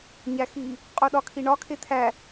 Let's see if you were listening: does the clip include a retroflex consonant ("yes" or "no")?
yes